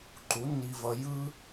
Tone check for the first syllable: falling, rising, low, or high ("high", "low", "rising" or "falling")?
rising